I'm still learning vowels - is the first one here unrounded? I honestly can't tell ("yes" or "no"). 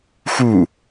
no